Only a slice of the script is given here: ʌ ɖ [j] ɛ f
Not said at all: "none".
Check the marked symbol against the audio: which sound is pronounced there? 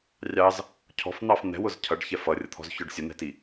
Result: ç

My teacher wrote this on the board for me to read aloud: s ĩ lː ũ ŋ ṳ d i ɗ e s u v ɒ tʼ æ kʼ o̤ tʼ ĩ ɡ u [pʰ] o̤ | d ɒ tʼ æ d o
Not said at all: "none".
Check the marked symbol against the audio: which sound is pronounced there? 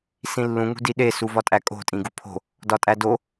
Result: pʰ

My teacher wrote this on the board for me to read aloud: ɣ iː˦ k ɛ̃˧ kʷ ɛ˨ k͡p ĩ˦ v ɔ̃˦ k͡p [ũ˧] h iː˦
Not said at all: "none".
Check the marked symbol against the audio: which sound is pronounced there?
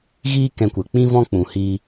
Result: ũ˧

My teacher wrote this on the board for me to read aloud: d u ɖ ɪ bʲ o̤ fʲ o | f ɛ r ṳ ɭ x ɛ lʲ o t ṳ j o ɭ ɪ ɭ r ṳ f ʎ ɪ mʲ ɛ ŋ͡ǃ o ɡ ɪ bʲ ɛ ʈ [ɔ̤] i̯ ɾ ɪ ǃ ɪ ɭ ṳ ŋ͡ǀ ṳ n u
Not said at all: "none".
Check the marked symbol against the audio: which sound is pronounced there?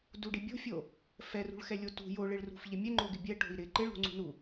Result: o̤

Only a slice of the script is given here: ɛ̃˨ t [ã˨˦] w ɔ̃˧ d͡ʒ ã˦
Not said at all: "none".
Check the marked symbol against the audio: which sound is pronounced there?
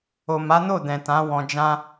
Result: ã˨˦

